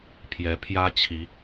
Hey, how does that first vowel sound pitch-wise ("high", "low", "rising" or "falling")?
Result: rising